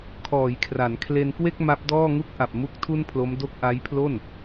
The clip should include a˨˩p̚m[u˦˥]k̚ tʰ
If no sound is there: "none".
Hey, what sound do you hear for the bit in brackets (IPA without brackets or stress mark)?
u˦˥